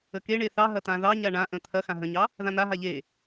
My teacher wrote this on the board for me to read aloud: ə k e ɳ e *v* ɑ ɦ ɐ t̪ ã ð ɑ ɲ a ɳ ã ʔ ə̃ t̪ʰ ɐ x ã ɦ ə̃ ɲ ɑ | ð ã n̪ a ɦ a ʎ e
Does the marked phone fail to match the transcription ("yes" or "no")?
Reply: yes